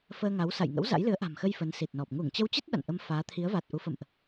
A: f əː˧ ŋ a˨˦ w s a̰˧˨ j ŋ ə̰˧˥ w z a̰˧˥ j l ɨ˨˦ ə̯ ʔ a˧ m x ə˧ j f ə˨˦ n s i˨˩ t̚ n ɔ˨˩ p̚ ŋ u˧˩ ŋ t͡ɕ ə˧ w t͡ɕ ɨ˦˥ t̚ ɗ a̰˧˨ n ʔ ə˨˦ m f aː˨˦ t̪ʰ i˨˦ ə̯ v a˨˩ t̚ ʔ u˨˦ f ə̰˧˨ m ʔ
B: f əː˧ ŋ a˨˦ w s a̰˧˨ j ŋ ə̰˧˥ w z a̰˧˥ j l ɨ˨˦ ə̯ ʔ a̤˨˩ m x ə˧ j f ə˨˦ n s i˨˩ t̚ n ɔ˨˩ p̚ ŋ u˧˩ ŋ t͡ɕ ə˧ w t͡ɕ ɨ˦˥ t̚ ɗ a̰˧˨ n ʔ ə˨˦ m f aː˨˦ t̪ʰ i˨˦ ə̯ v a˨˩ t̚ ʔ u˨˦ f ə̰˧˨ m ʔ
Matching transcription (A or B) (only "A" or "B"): B